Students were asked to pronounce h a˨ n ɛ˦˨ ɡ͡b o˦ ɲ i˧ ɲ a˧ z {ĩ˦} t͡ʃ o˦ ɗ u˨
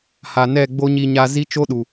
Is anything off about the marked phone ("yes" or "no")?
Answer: yes